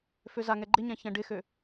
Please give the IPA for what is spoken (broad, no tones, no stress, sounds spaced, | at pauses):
f ø z a ŋ ɛ ɡ͡ǃ ɪ ɲ ã ç ɛ̃ ɖ ɪ x ø